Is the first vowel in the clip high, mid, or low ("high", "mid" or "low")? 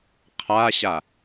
low